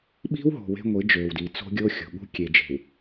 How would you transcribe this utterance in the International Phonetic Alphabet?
ɓi̤˦wɦo̤˨ we̤˦ŋʷi˨˦d͡ʒøː˨wdi˨ t͡so̤˦ɡʲo˦xʲo̤˨ɠṳ˦ kʲe˨d͡ʒe̤˨w

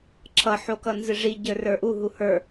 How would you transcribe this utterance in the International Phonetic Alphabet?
ǁʰʌħokʌnzɨ ʐiɟə˞rə˞ ʔuɦu hə˞

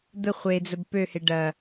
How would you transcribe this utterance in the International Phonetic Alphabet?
d̪ə χʷed͡zəb pøhe ɖɐ

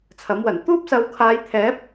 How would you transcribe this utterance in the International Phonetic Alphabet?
t͡sʰɐ˨˥mwɐ˨˩n t̪uː˥p̚sɐ˨˧wkʰaː˨˧j t̪ʰɛː˨˥p̚

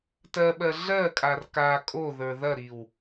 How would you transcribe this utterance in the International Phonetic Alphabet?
tɜɓɜ ɮɜkʼar ka kʼoðə˞ ðɐɾiw

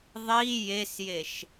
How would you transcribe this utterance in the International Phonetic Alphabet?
ðˤi jesjeʃ

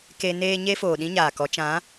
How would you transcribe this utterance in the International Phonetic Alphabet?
ke˧ neː˧ɲe˦ foː˨ɗĩ˦ɲaː˨kɔ˨˦ t͡ʃã˨˦

